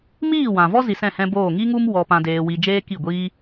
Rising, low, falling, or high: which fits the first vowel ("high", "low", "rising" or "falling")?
falling